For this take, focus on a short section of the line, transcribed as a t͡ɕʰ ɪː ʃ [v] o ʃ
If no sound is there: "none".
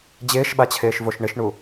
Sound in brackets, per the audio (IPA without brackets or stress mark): v